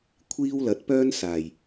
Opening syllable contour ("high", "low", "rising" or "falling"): high